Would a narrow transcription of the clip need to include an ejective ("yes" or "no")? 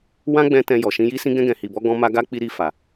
no